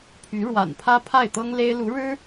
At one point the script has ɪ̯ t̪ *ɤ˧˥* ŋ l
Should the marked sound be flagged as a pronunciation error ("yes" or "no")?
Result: yes